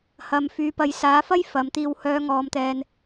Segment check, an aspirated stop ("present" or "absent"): absent